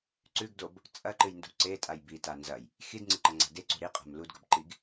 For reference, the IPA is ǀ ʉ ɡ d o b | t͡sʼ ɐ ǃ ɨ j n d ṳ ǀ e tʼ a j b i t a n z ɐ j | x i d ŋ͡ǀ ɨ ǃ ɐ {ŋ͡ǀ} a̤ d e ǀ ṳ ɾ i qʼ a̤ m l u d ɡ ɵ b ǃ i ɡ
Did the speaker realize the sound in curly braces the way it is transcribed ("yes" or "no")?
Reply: yes